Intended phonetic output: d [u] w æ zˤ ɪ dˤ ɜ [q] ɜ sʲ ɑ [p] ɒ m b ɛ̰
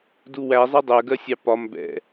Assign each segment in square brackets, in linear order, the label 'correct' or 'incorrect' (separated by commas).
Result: correct, incorrect, correct